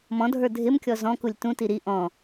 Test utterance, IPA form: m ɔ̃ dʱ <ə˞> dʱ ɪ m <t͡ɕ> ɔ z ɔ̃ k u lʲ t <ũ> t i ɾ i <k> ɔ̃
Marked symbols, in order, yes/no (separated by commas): yes, no, yes, no